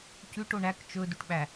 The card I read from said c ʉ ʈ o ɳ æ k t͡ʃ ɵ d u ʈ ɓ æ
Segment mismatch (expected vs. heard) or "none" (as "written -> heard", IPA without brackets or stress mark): none